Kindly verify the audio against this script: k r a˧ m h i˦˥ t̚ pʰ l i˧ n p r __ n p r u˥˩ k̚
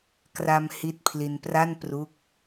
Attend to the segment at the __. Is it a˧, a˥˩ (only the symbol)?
a˥˩